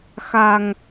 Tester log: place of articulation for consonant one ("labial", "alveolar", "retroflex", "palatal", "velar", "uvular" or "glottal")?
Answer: velar